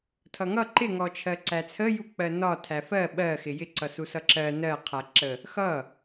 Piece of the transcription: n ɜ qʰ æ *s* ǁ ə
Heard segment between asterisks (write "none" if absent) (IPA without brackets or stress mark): none